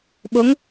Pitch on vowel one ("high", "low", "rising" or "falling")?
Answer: rising